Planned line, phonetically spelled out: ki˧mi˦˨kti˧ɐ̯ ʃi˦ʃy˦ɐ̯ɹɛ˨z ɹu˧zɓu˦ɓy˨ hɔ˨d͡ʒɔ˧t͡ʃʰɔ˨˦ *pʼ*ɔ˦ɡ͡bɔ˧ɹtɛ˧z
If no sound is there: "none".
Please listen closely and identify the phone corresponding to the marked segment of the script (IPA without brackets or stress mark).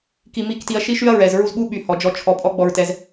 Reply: pʼ